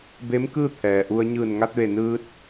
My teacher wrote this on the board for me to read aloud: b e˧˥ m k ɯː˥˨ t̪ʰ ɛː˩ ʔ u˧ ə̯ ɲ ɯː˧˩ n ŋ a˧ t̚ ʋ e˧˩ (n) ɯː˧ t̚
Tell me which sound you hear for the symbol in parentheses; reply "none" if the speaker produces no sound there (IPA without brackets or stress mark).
n